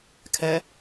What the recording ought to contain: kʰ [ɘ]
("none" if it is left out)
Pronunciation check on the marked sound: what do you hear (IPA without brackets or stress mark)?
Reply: ɛ